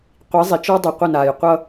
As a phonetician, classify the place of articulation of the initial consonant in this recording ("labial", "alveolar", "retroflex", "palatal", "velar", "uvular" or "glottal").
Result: uvular